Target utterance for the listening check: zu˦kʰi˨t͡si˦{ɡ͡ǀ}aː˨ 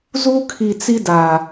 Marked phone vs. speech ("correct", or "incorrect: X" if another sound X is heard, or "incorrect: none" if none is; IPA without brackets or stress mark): incorrect: d